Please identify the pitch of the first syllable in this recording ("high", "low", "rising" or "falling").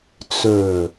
low